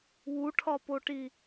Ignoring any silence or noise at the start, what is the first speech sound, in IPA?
w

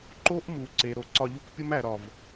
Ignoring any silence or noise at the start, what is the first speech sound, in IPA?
ǃ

